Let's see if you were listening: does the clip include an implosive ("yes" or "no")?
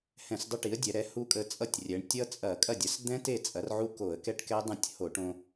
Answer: no